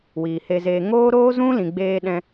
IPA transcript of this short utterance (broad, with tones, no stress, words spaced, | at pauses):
wiː˨he˧zeː˧ ŋoː˦ɾoː˦zũ˦lĩ˨ ɡ͡beː˧ɗɛ̃˧